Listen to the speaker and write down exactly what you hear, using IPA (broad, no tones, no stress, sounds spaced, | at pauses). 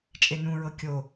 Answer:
t͡ʃʼ e n ũ ɹ ɤ kʲ o